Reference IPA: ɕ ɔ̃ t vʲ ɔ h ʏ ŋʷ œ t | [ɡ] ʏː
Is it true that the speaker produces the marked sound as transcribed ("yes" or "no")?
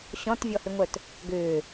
yes